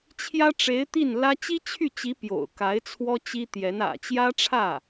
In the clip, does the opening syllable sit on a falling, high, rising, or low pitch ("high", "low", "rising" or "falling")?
high